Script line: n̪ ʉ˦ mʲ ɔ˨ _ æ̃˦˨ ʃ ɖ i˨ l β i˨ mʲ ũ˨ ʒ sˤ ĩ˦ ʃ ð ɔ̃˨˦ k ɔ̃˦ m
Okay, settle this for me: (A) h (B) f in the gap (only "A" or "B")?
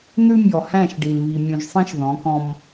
A